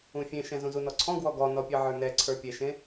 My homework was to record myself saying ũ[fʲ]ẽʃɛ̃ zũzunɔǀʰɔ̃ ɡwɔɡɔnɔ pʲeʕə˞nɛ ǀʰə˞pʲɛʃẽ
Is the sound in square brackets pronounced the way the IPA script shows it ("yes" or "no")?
yes